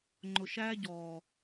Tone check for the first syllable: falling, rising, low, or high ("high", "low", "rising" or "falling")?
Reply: low